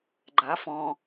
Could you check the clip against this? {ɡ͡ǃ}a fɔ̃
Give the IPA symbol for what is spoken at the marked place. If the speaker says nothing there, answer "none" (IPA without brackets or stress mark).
ɡ͡ǃ